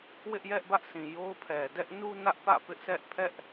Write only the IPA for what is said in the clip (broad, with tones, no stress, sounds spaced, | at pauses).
w ɪ˦ ʔ j ɛ˦ ʔ b ä˦ ʔ s ĩ˨ j o˦ ʊ̯ pʰ ɛ˨ d ɛ˦ ʔ n u˦ n ä˦ ʔ p ä̰˦˨ p ɪ˦ ʔ s ɛ˦ ʔ pʰ ɛ˦ ʔ